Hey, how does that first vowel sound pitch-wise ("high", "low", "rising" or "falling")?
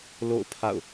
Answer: falling